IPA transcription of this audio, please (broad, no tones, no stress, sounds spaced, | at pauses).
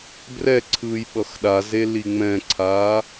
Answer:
b r ɛ ǀʰ ɯː j ɓ ʌ x ɗ a z e l i ŋ͡m ɛ̃ ǀʰ aː